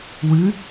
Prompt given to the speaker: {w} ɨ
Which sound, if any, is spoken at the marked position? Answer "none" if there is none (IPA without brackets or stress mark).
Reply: w